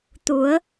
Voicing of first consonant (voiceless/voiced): voiceless